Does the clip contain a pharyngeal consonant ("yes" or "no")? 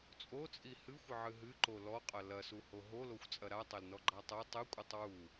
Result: yes